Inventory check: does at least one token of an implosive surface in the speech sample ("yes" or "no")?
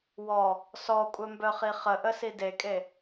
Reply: no